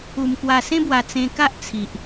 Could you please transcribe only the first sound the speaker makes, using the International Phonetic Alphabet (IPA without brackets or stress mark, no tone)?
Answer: u